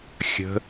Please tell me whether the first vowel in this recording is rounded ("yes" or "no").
no